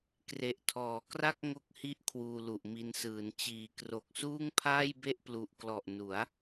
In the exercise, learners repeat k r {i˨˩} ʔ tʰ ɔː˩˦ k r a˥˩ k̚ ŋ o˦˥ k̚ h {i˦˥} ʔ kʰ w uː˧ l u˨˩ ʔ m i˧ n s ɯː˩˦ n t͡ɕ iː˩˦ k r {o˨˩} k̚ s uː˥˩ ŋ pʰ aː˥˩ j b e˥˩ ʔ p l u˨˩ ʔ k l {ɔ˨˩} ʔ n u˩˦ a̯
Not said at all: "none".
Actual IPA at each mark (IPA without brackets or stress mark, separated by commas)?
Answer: e˨˩, i˦˥, o˨˩, ɔ˨˩